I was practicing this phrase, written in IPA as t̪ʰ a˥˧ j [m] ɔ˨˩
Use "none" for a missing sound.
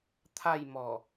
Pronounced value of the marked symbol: m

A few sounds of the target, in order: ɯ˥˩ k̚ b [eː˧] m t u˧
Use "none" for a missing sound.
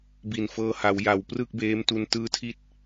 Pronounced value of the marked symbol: eː˦˥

